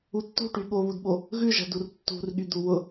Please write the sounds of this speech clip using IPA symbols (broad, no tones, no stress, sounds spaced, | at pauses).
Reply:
u tː ṳ ʈ y ɠ o β u d ɓ o | ɣ ʉ ʒ ɛ̤ d u r tː ṳ r ɠ y d̪ u w ʊ